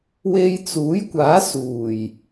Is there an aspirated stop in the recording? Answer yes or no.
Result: no